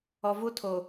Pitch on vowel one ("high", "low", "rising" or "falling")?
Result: low